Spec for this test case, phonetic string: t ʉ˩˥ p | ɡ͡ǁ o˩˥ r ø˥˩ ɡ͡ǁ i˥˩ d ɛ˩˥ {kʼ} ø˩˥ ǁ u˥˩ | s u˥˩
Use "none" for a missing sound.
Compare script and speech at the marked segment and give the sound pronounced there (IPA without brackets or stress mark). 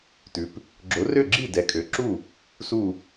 kʼ